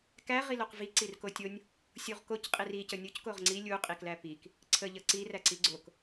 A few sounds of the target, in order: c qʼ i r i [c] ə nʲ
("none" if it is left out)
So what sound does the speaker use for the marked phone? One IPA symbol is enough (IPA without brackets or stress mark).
c